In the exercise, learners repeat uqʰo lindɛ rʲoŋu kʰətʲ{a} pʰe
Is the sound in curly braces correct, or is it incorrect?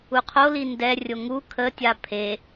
correct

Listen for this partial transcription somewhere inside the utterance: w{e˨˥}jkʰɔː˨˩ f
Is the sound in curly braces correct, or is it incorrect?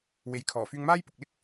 correct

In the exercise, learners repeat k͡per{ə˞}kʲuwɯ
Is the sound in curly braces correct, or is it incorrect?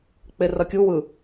incorrect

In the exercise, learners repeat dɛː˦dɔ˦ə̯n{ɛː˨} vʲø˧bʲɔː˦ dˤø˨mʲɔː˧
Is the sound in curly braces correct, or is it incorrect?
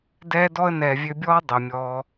correct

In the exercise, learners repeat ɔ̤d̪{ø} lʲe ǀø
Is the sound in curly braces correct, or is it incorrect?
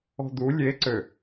incorrect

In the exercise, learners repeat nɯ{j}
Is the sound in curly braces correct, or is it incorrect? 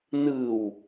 incorrect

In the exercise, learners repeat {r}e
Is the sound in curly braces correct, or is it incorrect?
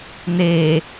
incorrect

